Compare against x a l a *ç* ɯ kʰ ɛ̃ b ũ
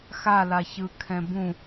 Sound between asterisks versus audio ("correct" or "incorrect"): correct